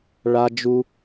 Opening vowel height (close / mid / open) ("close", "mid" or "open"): open